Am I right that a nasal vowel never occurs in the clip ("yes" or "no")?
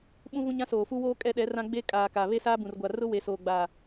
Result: no